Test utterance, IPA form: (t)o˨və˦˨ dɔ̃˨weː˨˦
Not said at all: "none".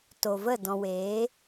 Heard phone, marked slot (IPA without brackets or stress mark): t